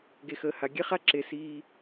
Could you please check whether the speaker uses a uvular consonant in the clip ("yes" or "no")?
yes